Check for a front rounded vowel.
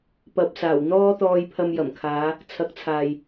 absent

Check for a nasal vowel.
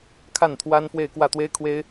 absent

